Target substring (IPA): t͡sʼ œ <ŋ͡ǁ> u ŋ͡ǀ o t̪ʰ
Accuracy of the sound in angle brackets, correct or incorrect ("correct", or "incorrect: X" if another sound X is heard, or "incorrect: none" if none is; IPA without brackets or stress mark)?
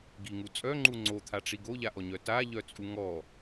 incorrect: ŋ͡ǃ